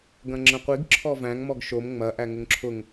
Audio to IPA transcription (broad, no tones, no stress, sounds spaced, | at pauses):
ɡ ɐ̃ ŋ͡ǁ ə̃ qʷ i ɡ ǁʰ ɔ v æ̃ ŋ m ɔ ɡ ʃ o m ŋ͡m ɐ ʔ æ ŋ ʊ ŋ ǁʰ ʊ ŋ